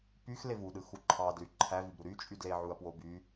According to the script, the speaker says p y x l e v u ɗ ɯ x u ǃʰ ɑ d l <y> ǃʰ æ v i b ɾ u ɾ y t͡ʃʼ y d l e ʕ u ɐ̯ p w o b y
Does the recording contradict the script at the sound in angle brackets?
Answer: no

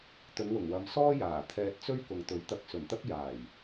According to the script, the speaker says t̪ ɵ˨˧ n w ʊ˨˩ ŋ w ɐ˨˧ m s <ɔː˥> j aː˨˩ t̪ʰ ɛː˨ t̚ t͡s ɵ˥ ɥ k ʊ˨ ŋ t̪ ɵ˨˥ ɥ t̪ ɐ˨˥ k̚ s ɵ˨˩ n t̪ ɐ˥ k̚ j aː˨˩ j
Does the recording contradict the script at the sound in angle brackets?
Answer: no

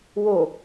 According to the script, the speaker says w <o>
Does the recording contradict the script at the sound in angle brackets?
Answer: no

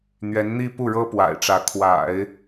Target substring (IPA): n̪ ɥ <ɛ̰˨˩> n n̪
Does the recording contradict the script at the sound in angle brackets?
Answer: yes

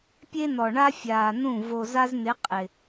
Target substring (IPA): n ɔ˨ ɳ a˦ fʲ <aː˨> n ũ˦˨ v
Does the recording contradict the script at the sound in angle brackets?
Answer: no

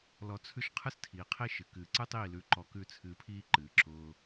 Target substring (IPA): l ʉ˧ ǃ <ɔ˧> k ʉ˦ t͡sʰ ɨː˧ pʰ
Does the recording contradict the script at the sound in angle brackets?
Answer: no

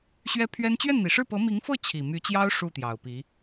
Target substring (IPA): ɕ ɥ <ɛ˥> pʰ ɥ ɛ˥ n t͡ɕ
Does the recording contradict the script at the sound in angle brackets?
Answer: no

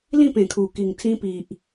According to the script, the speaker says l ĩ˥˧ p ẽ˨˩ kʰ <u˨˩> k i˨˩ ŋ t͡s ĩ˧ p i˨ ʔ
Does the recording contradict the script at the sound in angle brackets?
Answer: no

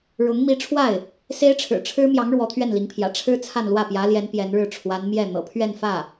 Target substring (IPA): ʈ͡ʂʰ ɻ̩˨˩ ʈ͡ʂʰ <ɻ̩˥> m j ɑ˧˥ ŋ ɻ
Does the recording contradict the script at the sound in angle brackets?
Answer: no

